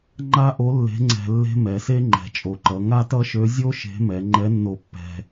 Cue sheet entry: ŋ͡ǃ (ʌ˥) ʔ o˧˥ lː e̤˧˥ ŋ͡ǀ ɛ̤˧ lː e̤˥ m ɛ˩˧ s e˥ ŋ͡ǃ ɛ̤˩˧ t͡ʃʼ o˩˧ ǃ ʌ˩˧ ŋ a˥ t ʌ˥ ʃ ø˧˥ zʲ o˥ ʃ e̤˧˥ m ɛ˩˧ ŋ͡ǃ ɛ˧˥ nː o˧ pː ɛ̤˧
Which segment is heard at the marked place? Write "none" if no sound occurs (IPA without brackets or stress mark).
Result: a˥